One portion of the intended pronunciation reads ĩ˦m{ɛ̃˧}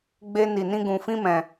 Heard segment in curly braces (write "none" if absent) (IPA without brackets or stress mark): ɛ̃˧